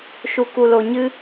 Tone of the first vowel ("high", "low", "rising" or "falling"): high